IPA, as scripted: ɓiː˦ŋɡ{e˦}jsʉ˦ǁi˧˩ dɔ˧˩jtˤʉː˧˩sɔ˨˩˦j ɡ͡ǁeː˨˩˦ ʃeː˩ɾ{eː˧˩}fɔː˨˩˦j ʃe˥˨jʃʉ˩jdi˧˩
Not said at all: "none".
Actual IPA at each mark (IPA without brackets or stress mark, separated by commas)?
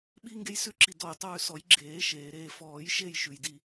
e˦, eː˧˩